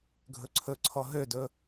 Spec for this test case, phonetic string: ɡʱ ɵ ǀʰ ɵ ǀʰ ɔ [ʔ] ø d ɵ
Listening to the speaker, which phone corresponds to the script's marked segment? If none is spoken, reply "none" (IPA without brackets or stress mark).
ɦ